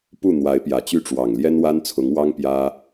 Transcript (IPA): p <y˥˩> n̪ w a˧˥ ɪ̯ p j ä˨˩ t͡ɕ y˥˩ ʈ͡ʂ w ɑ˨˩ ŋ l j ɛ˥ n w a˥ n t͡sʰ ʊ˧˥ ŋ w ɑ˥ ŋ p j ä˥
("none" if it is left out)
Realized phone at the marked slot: u˥˩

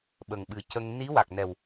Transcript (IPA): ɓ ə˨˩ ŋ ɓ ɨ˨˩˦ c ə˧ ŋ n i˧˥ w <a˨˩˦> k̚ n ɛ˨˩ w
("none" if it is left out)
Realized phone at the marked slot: a˨˩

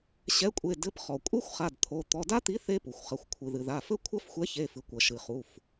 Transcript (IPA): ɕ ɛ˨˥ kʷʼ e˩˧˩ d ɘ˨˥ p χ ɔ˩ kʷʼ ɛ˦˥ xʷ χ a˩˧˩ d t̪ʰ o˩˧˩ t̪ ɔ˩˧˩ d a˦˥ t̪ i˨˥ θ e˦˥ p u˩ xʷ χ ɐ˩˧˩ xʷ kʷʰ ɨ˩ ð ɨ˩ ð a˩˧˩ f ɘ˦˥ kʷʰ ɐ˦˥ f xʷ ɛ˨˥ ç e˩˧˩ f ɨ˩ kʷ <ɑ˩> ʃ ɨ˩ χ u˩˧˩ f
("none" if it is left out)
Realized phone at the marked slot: ɐ˩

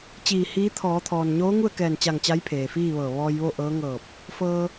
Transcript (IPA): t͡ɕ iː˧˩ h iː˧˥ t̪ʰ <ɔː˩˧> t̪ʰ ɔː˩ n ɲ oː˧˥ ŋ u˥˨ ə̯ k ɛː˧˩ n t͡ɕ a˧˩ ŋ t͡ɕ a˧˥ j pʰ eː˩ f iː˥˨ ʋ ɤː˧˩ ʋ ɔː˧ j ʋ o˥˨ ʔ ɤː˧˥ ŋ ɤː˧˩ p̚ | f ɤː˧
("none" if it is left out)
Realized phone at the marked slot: ɔː˩˧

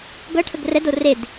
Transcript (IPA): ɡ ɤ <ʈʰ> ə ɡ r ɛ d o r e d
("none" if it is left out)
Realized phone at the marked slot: ʈʰ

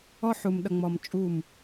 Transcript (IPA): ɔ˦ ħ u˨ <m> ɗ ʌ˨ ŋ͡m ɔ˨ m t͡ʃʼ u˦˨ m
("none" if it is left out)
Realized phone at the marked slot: m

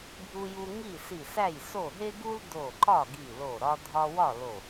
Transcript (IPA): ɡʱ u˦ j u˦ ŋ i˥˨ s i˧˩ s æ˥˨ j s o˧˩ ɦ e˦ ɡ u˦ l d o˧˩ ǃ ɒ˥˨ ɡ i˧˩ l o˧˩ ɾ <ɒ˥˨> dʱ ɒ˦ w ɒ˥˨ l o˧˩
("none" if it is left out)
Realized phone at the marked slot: ɒ˦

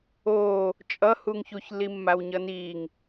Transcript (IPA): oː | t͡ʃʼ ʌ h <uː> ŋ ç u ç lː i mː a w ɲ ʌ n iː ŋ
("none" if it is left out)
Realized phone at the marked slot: uː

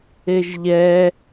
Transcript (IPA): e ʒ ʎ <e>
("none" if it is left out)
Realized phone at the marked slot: ɛ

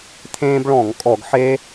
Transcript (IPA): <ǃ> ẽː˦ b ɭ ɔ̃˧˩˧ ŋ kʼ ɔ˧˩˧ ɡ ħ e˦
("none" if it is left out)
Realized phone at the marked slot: t̪ʰ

